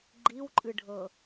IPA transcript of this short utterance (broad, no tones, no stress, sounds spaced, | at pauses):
ɡ͡ǃ i w ǃʼ ɨ ɖʱ ɤ